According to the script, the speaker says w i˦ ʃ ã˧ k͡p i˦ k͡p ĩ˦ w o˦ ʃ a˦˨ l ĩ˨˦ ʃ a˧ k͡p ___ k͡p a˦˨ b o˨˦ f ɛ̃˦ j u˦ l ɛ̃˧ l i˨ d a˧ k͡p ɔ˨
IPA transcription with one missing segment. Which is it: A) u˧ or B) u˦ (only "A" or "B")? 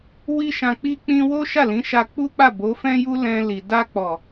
B